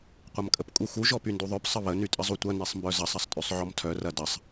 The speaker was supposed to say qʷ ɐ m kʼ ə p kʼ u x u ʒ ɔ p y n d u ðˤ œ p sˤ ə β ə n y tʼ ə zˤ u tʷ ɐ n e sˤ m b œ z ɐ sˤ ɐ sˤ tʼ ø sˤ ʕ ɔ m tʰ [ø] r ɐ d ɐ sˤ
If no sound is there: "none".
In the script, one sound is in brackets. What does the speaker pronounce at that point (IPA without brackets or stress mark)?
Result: œ